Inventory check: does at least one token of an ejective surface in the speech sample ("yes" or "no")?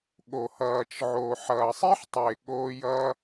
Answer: no